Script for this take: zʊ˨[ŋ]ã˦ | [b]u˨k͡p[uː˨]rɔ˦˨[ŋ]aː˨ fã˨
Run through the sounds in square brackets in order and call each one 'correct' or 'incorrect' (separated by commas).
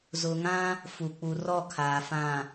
correct, incorrect, incorrect, incorrect